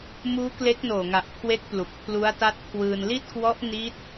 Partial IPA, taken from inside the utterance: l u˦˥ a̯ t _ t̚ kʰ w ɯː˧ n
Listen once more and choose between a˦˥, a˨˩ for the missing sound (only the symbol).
a˦˥